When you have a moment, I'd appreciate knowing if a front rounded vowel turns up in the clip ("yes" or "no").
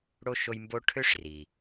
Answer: yes